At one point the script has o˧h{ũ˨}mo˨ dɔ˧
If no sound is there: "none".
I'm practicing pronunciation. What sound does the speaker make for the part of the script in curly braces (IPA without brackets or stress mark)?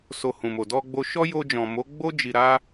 ũ˨